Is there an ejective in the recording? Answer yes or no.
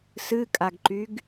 yes